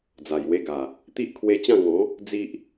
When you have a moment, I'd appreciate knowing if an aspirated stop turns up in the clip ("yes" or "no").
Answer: yes